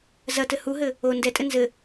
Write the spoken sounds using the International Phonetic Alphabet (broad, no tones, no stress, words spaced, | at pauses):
zɐtɘ huɦɘ | o ndɛtʼɘ nzɘ